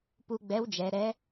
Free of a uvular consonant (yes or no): yes